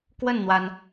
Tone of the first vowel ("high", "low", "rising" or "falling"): falling